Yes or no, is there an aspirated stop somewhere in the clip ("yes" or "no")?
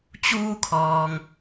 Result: yes